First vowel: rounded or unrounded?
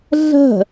unrounded